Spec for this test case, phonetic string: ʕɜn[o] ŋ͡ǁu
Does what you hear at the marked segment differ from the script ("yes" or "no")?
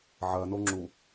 no